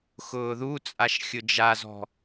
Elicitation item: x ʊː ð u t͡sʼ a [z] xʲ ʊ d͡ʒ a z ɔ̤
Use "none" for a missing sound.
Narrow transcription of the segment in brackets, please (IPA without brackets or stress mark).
ʃ